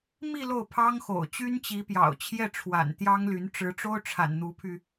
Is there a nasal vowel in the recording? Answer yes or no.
no